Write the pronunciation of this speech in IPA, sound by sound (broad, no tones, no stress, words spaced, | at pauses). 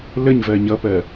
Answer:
ləɲ vɜɲʌpɜ